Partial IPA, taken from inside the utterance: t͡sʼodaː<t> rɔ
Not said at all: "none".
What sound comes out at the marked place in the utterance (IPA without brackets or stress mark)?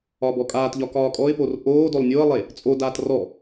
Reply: t